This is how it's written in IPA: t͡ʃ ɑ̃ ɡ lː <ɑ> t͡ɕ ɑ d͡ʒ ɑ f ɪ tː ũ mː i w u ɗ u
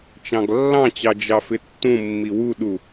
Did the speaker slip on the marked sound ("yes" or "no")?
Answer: yes